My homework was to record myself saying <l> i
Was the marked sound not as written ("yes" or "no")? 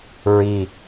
yes